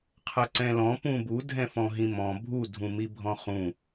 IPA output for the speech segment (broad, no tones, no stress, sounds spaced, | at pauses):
qʰ ɐ ǀ ɛ̃ l ɔ̃ p ũ b u dʱ ɛ̃ f ɔ̃ ɦ ĩ m ɔ̃ bʱ u dʱ ũ m i bʱ ɔ̃ χ ũ